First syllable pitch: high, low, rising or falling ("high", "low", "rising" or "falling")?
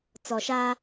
low